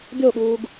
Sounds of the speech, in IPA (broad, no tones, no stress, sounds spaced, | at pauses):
ɡʲ o ɠ uː ɡ